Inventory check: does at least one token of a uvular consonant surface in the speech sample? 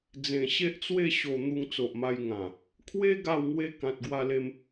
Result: no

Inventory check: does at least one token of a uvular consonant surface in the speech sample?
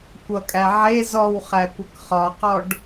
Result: yes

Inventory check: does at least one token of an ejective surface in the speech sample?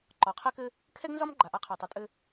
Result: yes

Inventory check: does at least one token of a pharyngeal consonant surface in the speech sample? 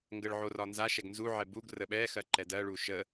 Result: yes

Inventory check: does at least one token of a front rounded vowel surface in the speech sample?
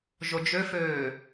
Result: yes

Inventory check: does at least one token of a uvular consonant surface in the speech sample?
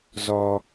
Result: no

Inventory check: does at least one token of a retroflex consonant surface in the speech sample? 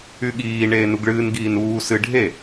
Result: yes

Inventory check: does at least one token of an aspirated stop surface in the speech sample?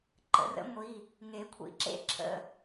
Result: yes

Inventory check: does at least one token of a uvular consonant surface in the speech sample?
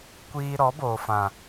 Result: no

